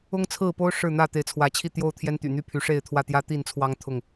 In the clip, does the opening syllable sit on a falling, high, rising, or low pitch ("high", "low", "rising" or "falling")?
high